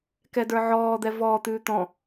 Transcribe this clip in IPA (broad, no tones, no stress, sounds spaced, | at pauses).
k ɛ d ə˞ ʕ ɔː d̪ ɛ v ɔː t̪ ʉː t̪ ɔ̃